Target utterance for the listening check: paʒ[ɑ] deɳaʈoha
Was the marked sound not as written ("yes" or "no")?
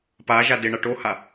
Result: yes